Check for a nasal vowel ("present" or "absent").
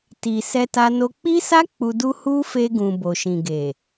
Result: present